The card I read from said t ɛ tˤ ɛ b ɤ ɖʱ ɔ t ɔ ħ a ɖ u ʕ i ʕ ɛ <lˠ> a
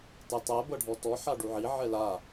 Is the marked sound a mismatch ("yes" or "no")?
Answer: yes